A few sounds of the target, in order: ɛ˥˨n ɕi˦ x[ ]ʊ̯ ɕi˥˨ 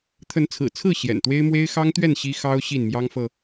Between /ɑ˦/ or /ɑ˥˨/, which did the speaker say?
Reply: ɑ˦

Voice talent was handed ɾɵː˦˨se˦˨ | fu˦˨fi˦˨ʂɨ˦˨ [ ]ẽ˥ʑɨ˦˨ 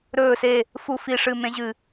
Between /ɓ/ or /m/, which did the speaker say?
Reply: m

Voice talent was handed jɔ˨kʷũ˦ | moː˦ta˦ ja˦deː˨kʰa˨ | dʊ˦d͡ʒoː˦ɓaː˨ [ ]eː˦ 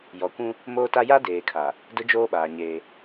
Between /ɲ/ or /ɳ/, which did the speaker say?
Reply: ɲ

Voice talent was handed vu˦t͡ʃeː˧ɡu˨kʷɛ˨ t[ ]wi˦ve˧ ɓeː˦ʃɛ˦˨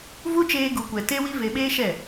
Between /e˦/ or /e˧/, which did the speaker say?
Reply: e˦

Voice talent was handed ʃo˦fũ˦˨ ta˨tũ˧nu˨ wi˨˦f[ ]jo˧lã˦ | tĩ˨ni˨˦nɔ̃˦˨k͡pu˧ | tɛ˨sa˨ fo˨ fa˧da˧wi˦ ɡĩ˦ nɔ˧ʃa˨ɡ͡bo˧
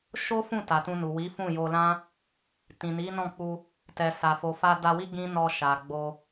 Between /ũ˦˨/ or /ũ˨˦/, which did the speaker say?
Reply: ũ˦˨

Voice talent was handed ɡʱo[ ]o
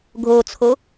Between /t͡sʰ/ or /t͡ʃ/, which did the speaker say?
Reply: t͡sʰ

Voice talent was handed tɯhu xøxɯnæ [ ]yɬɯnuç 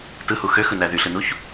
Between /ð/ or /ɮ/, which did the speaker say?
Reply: ð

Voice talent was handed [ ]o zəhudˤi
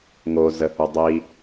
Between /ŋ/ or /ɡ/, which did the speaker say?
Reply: ŋ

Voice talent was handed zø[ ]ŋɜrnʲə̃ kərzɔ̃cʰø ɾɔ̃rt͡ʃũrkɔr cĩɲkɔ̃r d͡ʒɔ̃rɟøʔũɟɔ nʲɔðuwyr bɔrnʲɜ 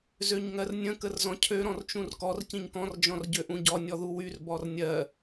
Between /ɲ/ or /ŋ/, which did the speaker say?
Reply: ɲ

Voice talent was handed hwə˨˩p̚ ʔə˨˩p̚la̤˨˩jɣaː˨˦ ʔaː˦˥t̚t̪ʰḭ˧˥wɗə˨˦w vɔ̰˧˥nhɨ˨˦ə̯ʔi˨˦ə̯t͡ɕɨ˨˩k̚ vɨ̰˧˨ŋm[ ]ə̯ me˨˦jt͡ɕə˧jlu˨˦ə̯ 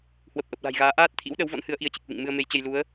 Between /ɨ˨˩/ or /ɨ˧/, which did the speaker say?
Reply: ɨ˧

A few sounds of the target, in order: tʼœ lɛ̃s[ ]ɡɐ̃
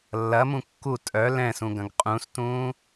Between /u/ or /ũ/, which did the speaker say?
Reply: ũ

